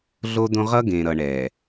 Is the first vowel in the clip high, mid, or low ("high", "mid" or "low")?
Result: mid